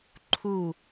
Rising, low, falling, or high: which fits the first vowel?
falling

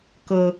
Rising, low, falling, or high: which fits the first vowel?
high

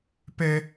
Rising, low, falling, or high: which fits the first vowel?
high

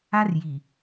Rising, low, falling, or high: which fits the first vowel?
high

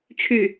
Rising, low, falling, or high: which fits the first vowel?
falling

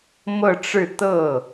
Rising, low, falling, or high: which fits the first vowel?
falling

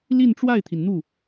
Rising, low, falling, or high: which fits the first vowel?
falling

